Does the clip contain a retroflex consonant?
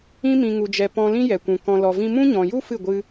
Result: no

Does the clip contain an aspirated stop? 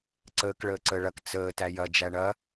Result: no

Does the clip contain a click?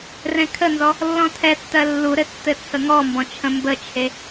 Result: no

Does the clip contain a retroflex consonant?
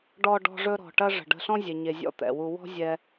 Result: yes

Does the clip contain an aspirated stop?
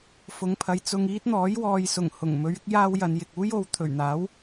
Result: yes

